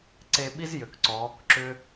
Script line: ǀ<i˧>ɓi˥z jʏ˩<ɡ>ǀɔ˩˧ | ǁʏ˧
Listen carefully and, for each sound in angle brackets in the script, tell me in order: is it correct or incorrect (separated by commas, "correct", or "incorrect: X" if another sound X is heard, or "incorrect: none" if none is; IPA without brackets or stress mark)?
incorrect: e˧, incorrect: k